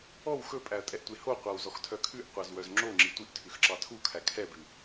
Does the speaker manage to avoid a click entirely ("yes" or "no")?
no